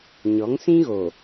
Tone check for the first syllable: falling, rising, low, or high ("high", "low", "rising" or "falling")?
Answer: rising